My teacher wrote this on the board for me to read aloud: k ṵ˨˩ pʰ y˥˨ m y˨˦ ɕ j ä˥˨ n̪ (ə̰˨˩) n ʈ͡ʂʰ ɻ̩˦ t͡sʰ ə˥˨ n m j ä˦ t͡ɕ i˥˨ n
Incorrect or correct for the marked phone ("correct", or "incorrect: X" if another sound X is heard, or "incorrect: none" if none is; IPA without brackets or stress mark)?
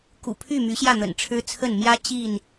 correct